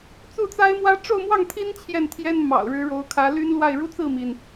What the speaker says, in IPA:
t͡s u˥˩ t͡s a˥ ɪ̯ m w ä˥ ʈ͡ʂ o˥˧ ʊ̯ m w ɑ˥˩ ŋ t̪ʰ i˥ n t͡ɕʰ j ɛ˥˩ n t̪ʰ j ɛ˥ n m ɑ̰˨˩ ʊ̯ ɻ ɻ̩˧˥ ɻ o˧˥ ʊ̯ kʰ ä˧˥ l y˥ n l w a˥˩ ɪ̯ ɻ u˥ t͡s ɹ̩˥˩ m i˩ n

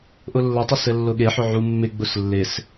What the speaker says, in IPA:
ʔ ʊ lː ə tˤ ʊ s ɘ lː ʊ ɠ e ħ ʊ ʕ u mː ɪ ɡ͡b ʊ s lː ɪ s

